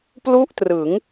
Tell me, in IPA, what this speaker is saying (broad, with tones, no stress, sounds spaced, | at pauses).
p l u˥˩ ʔ t r ɯ˩˦ ŋ